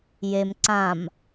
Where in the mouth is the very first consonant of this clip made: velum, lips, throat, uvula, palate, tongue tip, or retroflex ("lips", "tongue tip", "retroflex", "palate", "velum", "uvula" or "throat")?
palate